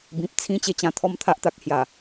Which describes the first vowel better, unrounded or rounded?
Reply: unrounded